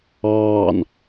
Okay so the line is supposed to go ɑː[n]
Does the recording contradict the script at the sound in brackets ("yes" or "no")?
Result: no